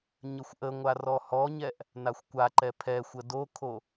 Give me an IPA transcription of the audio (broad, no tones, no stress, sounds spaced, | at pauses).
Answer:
ɲ ə xʷ ʔ ə ŋʷ a r ɔ h ɔ ɲ ɛ ʔ | n a xʷ kʷ a ǃ ɛ pʰ ɛ xʷ ə d o kʰ o